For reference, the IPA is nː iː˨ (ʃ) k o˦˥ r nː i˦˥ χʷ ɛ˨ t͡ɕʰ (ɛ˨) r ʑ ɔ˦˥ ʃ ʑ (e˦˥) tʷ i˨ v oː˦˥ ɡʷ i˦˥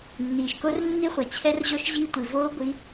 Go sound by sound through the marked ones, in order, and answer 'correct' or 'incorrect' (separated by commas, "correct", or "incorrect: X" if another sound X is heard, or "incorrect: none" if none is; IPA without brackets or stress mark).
correct, incorrect: ɛ˦˥, incorrect: i˦˥